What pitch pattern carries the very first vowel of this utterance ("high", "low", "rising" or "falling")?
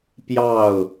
falling